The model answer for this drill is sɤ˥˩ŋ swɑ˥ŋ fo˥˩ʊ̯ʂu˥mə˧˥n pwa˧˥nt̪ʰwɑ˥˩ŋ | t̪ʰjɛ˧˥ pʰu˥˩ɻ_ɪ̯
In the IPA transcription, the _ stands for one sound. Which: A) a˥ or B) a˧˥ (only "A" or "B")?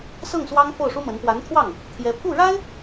A